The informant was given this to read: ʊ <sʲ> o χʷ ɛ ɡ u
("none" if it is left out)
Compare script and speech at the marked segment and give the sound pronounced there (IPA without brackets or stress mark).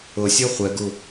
sʲ